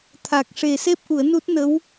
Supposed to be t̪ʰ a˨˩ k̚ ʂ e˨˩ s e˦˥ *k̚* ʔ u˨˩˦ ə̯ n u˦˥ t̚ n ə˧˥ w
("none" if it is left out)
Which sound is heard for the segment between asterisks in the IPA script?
p̚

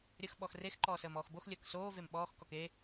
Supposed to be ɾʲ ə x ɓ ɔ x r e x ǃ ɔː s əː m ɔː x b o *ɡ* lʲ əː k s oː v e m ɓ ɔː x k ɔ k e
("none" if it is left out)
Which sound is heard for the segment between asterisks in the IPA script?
x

